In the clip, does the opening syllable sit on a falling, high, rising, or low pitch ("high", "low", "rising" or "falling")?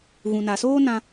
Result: low